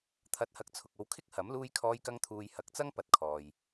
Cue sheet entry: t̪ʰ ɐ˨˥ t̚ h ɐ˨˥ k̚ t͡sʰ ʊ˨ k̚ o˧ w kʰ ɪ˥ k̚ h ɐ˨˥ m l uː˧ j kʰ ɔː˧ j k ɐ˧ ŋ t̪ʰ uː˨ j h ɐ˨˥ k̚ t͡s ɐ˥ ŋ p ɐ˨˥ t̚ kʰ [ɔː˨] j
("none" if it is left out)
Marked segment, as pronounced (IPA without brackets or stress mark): ɔː˨